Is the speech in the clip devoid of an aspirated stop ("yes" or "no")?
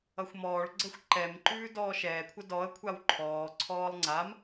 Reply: no